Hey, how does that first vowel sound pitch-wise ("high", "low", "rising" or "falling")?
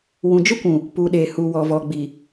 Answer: low